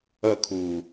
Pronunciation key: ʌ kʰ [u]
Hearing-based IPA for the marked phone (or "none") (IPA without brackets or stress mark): u